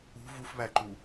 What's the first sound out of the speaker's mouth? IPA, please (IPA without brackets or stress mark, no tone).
ṳ